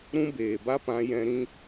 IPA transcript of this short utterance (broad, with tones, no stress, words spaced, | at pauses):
ɾũ˦beː˨ ba˦pã˧jɛ̃˧ ɾĩ˧